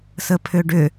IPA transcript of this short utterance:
səpʰʏɖʏ

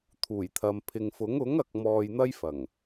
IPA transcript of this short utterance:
t̪ʰuː˨˩jt̪ʰɐ˨mpʰɪ˨ŋfʊ˨˥ŋ ʊ˨˥ŋɐ˨k̚ mɔː˧jn̪ɐ˥jfɐ˨˩ŋ

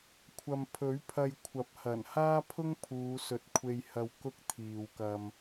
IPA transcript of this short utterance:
kʷʰɐ˨m pʰɵ˨˥ɥpʰɐ˧jkʷʰɐ˨˥p̚hɐ˨˩n haː˥pʰʊ˥ŋ pʰuː˨˧sɵ˨˥t̚kʷʰe˧jhɐ˧w kʊ˥k̚ t̪ʰiː˨wkɐ˧m

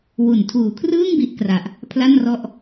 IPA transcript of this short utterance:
wu˨˩ntʰuː˨˩kʰrɯː˥˩ŋ bi˦˥ʔkra˨˩ʔ | pʰla˥˩nrɔ˥˩ʔ

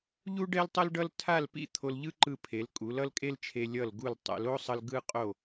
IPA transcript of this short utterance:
ʎu˥ɖɛ˥l tˤʌ˥lɖʌ˥l tʰa˥˧lpḭ˥˧ t̪ʰo˧lʎɯ˥ǃɯ˧pʰe˩˧l kʼu˩˧l ʌ˥lkʼe˥lt͡ʃʰe˧ lʲʌ˧˩lɡu˧˩l tˤɛ̰˩˧l o˥sˤʌ˧l ɡɯ˧qʼo˧˩

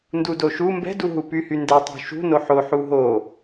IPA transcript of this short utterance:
ndudoʃu mbɛ̤duɦu pyhyndɛ tˤṳʃṳ noħoħu ɦo

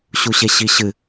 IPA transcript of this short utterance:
ɕuɕeɕiɕɨ

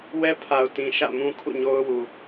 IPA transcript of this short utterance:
wɛ˦pʰa˨ʊ̯tĩ˨ ʃä̰˦˨mũ˦ kʰṵ˦˨ɲo˦ʊ̯ wu˨

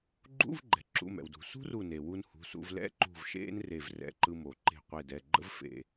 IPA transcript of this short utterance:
ɡ͡ǃṵ˧˥˧vɡ͡ǃɛ̤˩ǁṵ˩˧˩ mɛ̰˩wdṳ˩ sṳ˥ru˧˩ne˩ wu˧n hṳ˩˧˩sṵ˧v lɛ̰˧˥˧ǃṳ˧˩v ʃḛ˥nre˧˩vrɛ̰˧˩ ǃɯ˧mo˩ ǃe̤˧˩qʷe˧˩dɛ˩˧˩ɡ͡ǃə̰˥v fḛ˧˩

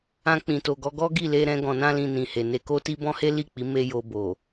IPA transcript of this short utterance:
ã˧k͡pĩ˨to˨ ɡɔ˧ɡɔ˦ɡi˦˨ le˧ɾɛ̃˧ ɡɔ̃˨nã˧lĩ˨ nĩ˨he˨ ne˧ko˦ti˦ bɔ̃˦he˦li˦˨k͡pi˨˦ me˦jo˧bo˨

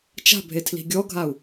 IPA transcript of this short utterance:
t͡ʃa̤bʱe tʰli̤ɡʲɔɡʱau̯

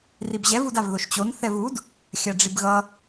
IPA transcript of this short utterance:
ribʑɛv udavðoʃt͡ɕon θɛvud | xʲaɖ͡ʐibɣʌ

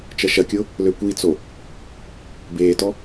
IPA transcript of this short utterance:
t͡ʃɐʃɐkʲʊ | løkʷit͡so | beːtɔ

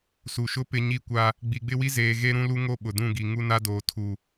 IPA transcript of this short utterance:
su˨ʃʊ˦ pɪ˦ ɲi˦kʷa˦ | ɡ͡bi˨ɡ͡bɪ˦wi˦zeː˨ ɣe˦ɾũ˦lu˦ŋo˦˨ ɓʊ˨dũ˦˨ɡi˨ ŋu˦na˦doː˨ tʰu˨

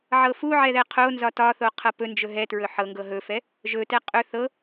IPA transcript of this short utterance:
ʕɤfuʕɛ ðɛqʰonzɒ tɒθo qʰɤpɵnd͡ʒɵ ɦɛtɹɵ ħɤ ŋɡɤɦɵfɛ | ʒɵtɛ qʼɵ θɤ

